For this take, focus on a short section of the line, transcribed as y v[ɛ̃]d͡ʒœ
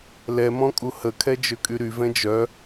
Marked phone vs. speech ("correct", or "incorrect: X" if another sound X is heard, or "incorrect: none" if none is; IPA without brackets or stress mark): correct